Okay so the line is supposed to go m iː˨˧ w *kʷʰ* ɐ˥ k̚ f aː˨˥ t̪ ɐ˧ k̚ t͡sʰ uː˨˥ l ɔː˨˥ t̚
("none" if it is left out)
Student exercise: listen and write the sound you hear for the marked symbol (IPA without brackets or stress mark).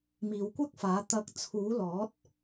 kʷ